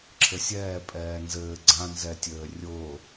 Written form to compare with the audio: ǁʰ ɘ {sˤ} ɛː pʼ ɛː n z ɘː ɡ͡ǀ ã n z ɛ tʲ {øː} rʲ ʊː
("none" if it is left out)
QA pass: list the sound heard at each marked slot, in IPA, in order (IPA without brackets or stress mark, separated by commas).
sʲ, øː